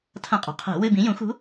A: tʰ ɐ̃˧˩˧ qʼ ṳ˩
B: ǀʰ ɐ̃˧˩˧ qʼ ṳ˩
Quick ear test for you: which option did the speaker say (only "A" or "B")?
A